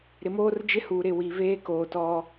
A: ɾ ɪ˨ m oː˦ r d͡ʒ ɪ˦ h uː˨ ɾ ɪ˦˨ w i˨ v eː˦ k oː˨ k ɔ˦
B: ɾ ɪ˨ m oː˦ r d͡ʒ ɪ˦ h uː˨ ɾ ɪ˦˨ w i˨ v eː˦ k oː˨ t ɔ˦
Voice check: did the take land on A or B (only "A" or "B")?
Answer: B